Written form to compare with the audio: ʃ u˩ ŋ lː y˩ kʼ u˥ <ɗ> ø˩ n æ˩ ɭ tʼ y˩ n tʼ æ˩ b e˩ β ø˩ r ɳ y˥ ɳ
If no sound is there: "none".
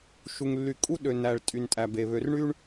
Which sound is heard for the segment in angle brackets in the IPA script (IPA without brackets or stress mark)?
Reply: ɗ